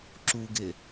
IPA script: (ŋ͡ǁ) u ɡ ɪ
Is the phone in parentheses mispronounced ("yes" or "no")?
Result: yes